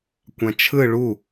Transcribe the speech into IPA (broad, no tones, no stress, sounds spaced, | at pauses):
kʷ ã t͡ʃʰ ɯ ɭ u